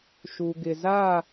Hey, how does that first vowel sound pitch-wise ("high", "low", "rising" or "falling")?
low